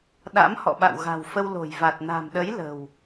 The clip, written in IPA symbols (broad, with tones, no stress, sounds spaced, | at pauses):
ɗ a̰˧˥ m h ɔ̰˧˨ ɓ a̰˧˨ w ɣ a̤˨˩ w f ə˧ w l o̤˨˩ j v a˨˩ t̚ n a̤˨˩ m ɗ ə˨˦ j l ə̤˨˩ w